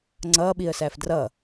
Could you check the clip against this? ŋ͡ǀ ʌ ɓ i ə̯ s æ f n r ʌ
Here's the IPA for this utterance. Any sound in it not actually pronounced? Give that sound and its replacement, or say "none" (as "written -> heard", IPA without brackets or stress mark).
n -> d